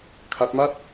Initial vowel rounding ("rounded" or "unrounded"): unrounded